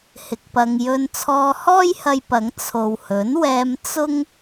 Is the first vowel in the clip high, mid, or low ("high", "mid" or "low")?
high